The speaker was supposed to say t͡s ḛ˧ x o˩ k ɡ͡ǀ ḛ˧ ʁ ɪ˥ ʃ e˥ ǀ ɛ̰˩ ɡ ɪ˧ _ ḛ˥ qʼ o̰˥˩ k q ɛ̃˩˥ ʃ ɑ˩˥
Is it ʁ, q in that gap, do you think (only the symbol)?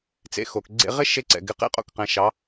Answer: q